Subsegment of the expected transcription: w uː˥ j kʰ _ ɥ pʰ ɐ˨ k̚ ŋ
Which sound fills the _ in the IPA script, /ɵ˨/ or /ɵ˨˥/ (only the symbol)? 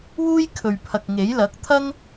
ɵ˨